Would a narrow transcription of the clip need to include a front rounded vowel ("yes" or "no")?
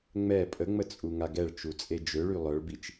yes